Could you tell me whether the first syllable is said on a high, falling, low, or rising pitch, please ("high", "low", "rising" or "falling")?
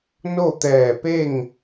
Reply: falling